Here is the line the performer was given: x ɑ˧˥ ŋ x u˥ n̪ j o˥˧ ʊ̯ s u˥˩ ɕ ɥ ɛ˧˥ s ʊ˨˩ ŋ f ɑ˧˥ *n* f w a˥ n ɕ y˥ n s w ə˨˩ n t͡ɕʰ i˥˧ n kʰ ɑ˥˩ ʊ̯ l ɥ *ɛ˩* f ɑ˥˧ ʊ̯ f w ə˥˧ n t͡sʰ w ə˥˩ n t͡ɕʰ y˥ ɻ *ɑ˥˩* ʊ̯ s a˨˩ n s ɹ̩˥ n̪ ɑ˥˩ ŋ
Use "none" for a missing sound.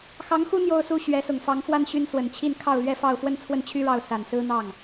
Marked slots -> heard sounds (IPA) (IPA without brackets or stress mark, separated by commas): ŋ, ɛ˥, ɑ˥˩